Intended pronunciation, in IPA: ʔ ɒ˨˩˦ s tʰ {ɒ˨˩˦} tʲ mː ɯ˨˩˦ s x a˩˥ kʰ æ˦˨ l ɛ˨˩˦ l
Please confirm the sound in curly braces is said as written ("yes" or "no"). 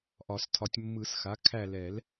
yes